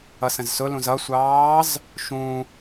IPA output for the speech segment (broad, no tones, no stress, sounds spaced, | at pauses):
ʌ s ə̃ z s ʊ l ũ z ʌ sʷ ɑː z | ʃ ũ